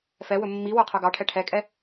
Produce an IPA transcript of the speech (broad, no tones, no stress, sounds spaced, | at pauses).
f ɛ w ɵ mː i w œ qʰ œ ɡ ɑ ʈʰ ɛ ʈʰ ɛ kʼ ɛ